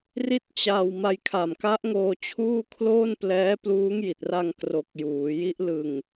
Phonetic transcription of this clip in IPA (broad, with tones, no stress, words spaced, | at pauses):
ri˥˩t̚t͡ɕa˧w ma˧jkʰa˨˩mka˦˥ʔŋoː˧ t͡ɕʰuː˥˩kʰloː˥˩nplɛː˦˥ pluː˦˥ŋji˨˩t̚ra˧ŋkro˨˩k̚ juː˩˦ji˦˥ʔ lɯ˨˩ŋ